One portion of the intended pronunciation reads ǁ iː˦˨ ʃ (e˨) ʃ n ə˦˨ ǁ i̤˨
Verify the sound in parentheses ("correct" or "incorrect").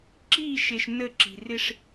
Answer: correct